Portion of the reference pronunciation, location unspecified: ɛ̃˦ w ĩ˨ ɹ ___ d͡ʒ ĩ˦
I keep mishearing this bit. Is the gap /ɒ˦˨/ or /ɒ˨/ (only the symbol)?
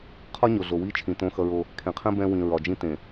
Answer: ɒ˨